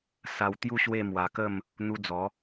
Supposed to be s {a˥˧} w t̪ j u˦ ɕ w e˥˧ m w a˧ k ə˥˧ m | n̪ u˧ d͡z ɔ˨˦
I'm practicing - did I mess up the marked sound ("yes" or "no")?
yes